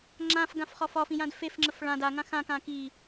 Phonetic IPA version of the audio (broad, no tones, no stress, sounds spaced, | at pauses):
ŋ͡ǁ ã f ɡ ã f χ ɒ f ɒ f ĩ j ã d f e f ŋ͡ǁ ə f ɭ ã d a ŋ ã x ã k ã k i